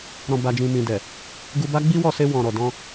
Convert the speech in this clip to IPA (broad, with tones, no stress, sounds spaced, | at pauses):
ɾ ɔ̃˨ b a˨ d͡ʒ ĩ˨ m ĩ˨ d ɛ˨ | ɡ u˧ b a˦ ɡ͡b i˦ w ɔ˦˨ s e˧ w ɔ̃˨ ɾ ɔ˨ d ɔ̃˧